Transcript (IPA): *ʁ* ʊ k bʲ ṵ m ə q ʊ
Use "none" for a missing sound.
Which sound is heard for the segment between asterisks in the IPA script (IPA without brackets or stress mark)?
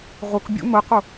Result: ʁ